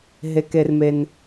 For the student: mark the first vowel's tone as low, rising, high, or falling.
low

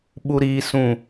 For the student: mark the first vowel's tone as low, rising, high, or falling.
high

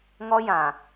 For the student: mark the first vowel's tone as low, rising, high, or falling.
high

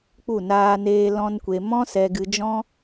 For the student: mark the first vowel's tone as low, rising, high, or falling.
falling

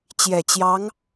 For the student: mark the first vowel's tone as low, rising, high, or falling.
low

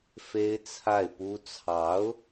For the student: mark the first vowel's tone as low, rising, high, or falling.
high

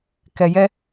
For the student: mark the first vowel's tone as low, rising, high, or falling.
low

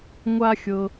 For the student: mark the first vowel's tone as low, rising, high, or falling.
high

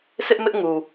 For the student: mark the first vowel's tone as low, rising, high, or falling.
high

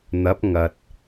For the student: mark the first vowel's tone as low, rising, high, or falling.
rising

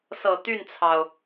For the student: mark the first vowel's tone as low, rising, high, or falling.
low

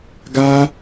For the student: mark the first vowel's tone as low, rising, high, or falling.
high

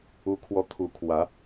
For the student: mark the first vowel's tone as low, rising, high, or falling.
high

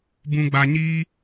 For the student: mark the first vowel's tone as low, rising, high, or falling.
low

